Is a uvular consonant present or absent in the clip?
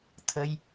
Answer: absent